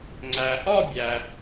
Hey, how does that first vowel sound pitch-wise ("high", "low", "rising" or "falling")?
low